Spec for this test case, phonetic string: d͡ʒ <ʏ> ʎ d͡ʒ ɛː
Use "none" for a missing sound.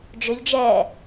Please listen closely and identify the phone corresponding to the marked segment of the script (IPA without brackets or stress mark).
ʏ